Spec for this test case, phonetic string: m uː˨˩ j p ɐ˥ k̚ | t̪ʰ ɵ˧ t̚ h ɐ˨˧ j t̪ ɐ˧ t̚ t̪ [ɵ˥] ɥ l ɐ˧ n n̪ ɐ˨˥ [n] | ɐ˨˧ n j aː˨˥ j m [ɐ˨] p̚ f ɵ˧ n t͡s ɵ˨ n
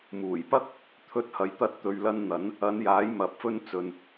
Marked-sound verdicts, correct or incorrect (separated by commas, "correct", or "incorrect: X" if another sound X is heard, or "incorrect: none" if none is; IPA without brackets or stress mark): incorrect: ɵ˨, correct, correct